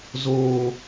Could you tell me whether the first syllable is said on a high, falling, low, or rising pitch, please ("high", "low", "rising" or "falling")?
falling